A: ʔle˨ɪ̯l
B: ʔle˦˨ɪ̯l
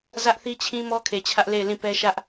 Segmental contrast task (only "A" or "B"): B